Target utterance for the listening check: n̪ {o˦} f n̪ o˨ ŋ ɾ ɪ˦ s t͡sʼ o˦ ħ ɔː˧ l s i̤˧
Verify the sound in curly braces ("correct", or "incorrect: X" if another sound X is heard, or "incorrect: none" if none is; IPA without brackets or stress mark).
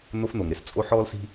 correct